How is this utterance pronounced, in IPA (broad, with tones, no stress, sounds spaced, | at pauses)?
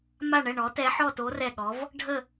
m a˥˧ ɳ ɛ˥˧ ɳ ɔ˧˥ t ɛ˧˥ ħ ɔ˥˧ t o˧˥ r ɛ˥˧ ɠ ɔ˧˥ v | ɖʱ ə˥˧